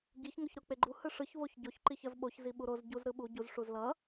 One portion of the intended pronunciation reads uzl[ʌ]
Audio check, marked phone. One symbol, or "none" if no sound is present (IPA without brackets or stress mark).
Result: ʌ